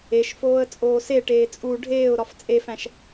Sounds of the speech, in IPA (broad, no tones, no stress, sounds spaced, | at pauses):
e ʃ f oː ə̯ t͡sʼ oː s e ʈ eː t͡sʼ u ɖʱ eː ʊ̯ ɾ ɒ f t͡sʼ e f æ̃ ʃ